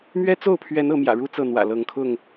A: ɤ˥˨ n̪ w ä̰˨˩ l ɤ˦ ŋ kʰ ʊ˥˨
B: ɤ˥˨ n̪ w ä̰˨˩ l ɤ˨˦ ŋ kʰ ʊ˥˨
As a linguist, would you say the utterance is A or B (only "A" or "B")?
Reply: B